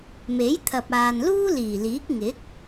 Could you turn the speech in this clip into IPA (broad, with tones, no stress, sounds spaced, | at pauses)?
m e˨˥ j t̪ʰ ɐ˨ p̚ aː˨ n l uː˥ l iː˨˩ l iː˨˥ k̚ ŋ ɪ˨˥ k̚